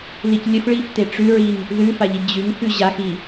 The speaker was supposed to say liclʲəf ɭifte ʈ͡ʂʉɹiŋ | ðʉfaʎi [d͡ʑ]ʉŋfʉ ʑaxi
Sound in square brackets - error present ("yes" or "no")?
no